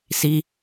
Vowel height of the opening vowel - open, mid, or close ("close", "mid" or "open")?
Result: close